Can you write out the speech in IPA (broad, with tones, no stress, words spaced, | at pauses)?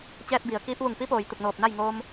t͡ɕɛː˧t̚bi˩ə̯ kiː˧p̚ʋu˧˩ŋ pi˧˥poː˩j t̪u˧˩k̚noː˧˩p̚na˥˨j ŋoː˧m